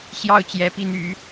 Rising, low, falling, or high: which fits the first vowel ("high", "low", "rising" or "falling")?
falling